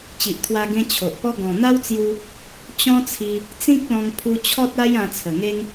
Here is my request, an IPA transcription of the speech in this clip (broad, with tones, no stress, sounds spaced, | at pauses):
t͡ɕ i˨ ʔ t̪ʰ w a˧ ɡ ẽ˧ t͡ɕʰ o˨ ʔ p ɔ˦ ɡ ɔ̃˨˩ n̪ a˦ w t͡s j u˧ | t͡ɕ ɔ̃˦ t͡sʰ i˧ | t͡s ĩ˦ k̚ l ɔ̃˧ ŋ pʰ u˧ t͡ɕʰ ɔ˦ t̚ a˦ j ã˧ t͡sʰ ə˨˩ ŋ e˦ ŋ